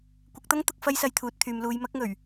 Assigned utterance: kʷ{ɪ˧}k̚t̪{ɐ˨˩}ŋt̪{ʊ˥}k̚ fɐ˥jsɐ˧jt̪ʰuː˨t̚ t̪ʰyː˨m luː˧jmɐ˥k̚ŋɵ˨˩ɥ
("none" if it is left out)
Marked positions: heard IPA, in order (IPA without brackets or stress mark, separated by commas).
ɪ˨˥, ɐ˥, ʊ˧